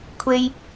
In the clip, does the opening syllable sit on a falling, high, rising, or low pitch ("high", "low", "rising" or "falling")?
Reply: high